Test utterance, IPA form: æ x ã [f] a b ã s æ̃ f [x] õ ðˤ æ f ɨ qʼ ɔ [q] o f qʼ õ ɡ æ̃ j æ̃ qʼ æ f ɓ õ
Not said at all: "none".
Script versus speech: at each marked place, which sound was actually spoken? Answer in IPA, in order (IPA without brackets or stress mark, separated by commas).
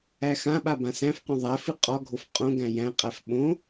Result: ɓ, q, ɡʱ